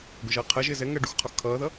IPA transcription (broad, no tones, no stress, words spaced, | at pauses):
ɡʊʒʌːqʰɜʒɪː zɛŋɜ ɖuxqʰɒx kʰʌːðʌ